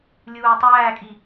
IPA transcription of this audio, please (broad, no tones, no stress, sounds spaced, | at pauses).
lʲ uː tˤ æː kʼ i